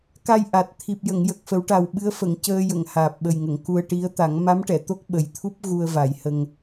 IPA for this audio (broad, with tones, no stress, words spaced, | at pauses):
ka˧j ʔa˨˩t̚ t̪ʰi˨˩p̚jə˨˩˨ŋjə˨˩k̚ fə˨˩˦wʈa˨˩wɓɨ˧˥ə̯ fə˨˩˨ŋcəː˧jə˨˩˨ŋ haː˨˩p̚ɓə˨˩jŋə˨˩˨ŋ ku˧ə̯ʈi˧˥ə̯ t̪a˨˩˦ŋma˧˥mʈɛ˨˩˨ t̪o˦˥k̚ɓə˨˩j t̪ʰu˦˥p̚ ɣu˧ə̯ va˨˩˦jhə˧ŋ